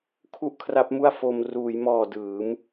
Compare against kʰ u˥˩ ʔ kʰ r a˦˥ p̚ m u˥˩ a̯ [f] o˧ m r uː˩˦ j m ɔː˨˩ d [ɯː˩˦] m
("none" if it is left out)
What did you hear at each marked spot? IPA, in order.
f, ɯː˩˦

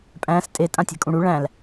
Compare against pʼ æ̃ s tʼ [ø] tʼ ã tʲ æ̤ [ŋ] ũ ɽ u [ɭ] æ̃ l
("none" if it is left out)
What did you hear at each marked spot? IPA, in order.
e, kʼ, ɭ

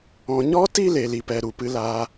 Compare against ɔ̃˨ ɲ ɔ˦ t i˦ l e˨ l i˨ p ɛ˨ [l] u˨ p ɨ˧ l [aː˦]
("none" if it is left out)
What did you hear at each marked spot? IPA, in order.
ɾ, aː˧

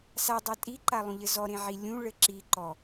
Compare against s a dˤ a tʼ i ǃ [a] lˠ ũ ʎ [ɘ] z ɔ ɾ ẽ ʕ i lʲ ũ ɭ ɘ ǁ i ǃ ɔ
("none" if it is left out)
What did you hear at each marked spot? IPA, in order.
a, ɘ

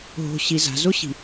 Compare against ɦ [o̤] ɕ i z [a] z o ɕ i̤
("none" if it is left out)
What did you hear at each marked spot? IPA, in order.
o̤, a̤

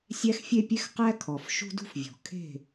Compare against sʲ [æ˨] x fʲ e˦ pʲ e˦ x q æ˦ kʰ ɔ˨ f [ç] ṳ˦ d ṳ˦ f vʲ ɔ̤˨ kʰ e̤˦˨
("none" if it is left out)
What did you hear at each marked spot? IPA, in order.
æ˦, ʃ

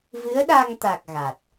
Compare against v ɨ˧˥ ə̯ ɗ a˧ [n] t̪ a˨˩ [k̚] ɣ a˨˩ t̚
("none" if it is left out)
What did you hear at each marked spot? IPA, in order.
ŋ, k̚

